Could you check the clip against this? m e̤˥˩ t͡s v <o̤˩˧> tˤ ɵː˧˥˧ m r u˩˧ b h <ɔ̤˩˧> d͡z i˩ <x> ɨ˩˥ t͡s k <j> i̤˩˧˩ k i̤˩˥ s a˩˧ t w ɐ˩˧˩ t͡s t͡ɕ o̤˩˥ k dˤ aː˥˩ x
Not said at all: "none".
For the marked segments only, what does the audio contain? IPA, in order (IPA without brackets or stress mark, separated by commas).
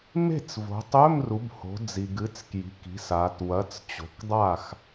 o̤˩˧, o̤˩˧, ɡ, j